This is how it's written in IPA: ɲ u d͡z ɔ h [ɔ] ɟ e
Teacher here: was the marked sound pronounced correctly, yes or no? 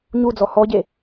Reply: yes